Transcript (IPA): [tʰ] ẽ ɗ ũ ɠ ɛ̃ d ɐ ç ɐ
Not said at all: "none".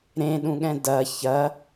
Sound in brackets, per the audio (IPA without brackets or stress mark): ɾ